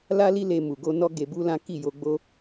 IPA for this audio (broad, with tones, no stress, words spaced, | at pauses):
la˦li˦le˧ mu˨ɡo˧ nɔ˦ɡe˧bu˦lã˦ ki˦˨jo˧ɡ͡bo˦